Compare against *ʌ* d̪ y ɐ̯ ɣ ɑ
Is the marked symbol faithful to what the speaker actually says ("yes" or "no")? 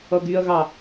yes